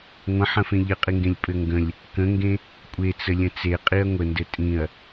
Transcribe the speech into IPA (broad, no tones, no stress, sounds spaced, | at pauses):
ŋʷ ə̃ ħ ə̃ f ẽ ʎ ɘ qʼ i ŋ ɡ ẽ lʲ pʼ ɘ ŋ ɡ ə̃ lʲ | k ə̃ ŋ ɡ ẽ | kʷʼ e t͡s ə lʲ ə̃ t͡s e qʼ i ɐ̯ ŋʷ ə n d ɘ tʼ ĩ ɐ̯